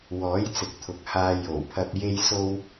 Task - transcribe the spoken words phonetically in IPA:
wɔː˨˥jt͡sɪ˨k̚t̪ʰʊ˨k̚haː˧ jo˨˩w pʰɐ˧p̚ je˥jso˥w

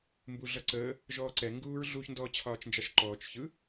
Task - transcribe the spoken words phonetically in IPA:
mbuɮʌǀəː | ʒɔːǀɛ ŋɡuːɹɮuç ndɔːt͡ɕʰɒːt͡ʃnd͡ʒɑʃǃɔːt͡ʃ çɯ

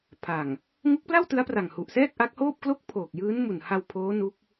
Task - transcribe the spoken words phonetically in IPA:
pʰa˨˩ŋ | ŋu˦˥k̚pla˥˩w tɯ˦˥a̯pra˨˩ŋ hu˨˩ʔsɛː˥˩k̚ʔa˦˥k̚hoː˥˩p̚ klo˥˩k̚pʰoː˨˩k̚jɯː˦˥nmu˨˩n ha˧wpʰoː˦˥ nu˦˥k̚

